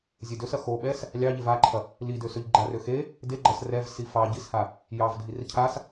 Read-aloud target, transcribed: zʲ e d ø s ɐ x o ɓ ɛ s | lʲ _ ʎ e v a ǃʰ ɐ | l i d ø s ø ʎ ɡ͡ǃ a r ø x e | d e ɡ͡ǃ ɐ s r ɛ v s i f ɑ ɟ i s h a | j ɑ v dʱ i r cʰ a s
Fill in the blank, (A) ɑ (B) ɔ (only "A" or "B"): A